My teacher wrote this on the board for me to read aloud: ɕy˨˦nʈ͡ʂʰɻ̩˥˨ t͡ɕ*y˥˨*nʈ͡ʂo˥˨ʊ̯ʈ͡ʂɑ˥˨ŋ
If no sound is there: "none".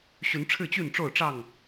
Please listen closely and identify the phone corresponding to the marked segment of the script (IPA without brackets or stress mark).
y˥˨